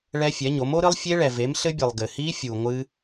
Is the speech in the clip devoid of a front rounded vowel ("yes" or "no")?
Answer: yes